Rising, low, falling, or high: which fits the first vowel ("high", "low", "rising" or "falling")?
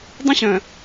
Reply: high